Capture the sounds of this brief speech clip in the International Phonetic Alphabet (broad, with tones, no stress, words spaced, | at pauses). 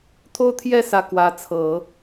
t̪ʰo˥˧ʊ̯t̪ʰjɛ˥˧ sä˥˩ kwä˧˥ t͡sʰɤ˨˩˦